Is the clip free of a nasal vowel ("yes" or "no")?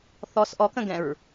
no